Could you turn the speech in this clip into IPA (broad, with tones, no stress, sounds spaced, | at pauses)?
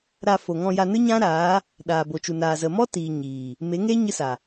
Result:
ɾ a˧ f o˨ ŋ ɔ̃˧ j a˧ n ɨ˦ ɲ ã˦ ɾ aː˨˦ | ɗ aː˨ b o˨ t͡ʃ u˨ n aː˨ z ə˨ m ɔ˦ t iː˨ ɲ iː˨ | m e˨˦ ŋ eː˦ ɲ ɨ˧ s a˨